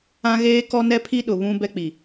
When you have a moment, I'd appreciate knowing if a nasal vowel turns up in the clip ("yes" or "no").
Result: yes